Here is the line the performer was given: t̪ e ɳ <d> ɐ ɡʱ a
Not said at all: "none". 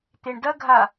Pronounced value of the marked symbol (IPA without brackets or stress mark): d